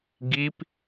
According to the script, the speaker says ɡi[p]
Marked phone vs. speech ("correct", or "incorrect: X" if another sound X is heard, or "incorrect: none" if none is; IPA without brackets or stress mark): correct